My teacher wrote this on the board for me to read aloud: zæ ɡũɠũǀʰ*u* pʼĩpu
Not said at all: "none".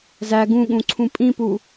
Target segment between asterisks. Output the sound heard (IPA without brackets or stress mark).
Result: ũ